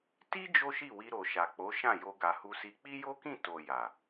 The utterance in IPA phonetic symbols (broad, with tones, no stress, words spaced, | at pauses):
ti˦ d͡ʒo˦ʃi˦˨wi˧ ɾo˨ʃa˨k͡po˨˦ʃã˦˨ jo˧ɡa˨hu˧si˧ k͡pi˦jo˦kĩ˦˨ to˨ ja˨